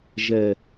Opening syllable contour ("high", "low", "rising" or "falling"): low